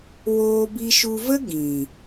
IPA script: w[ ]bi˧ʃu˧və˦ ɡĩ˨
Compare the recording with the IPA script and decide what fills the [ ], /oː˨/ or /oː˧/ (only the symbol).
oː˧